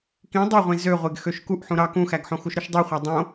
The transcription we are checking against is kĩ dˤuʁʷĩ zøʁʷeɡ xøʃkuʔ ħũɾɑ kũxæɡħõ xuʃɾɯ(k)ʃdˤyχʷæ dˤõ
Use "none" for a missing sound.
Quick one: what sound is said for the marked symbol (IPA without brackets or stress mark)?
none